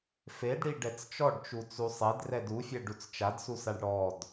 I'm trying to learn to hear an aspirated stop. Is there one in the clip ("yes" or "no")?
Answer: no